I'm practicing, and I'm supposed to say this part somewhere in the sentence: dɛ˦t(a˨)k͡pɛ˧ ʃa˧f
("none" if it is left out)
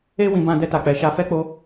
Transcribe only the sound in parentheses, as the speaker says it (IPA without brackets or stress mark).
a˦˨